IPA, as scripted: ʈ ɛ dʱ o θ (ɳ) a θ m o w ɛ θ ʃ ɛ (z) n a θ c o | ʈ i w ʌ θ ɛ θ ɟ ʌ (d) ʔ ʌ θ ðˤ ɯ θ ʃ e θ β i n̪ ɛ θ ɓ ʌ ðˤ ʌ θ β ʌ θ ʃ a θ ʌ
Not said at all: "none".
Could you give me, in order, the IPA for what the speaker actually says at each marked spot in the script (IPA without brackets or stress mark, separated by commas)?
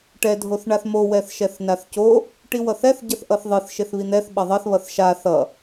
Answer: ɳ, θ, θ